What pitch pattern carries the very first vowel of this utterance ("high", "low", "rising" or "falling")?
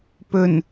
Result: low